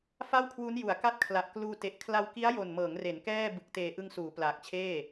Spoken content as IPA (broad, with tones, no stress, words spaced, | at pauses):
fa˥˩wkʰwu˦˥n ju˩˦a̯ka˥˩t̚kʰla˨˩ʔ kluː˧te˨˩ʔ kʰla˧wki˦˥a̯jo˨˩nmɤː˩˦ŋ re˩˦nkɛː˥˩ bɯ˨˩k̚teː˨˩ ʔɯ˧ŋsuː˩˦ plaː˨˩k̚t͡ɕʰeː˥˩